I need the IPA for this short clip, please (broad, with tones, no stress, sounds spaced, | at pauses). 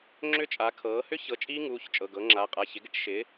ŋ͡ǁ ʏ˦˥ t͡ʃʼ a˩˥ kʰ ɤː˩˥ h ʏ˦˥ ç ɤ˩˥ t͡ʃʼ iː˦˥ ŋ uː˩˧˩ ç t͡ʃʼ ɤ˩˧˩ ɡ ɤ˩˥ ŋ͡ǁ a˩˧˩ qʼ a˩˧˩ ç ɪ˩˥ ɡ ɪ˦˥ ʈ ʃ ɪː˩˥